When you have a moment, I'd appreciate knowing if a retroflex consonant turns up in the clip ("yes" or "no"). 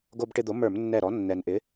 yes